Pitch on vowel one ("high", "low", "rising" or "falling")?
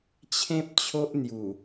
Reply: high